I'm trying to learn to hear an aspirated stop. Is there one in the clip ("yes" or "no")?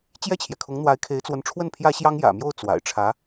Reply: yes